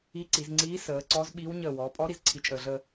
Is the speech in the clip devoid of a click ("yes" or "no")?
no